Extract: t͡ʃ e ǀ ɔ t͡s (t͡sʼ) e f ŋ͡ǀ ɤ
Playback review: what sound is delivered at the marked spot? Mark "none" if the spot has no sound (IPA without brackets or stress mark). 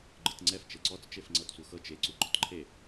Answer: t͡ʃ